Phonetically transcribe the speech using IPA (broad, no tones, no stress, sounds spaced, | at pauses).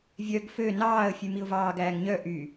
vʲ œ ɡ f ø n ɑː ə̯ fʲ ʉ m i ʊ̯ v ɑː ɡ æː ŋ ɲ œ ʔ y